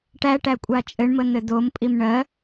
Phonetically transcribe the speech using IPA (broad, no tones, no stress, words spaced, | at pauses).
ʈæʈækʷʼa t͡ʃʼɘɳmən̪ɘ d̪ompʼim ɳɜ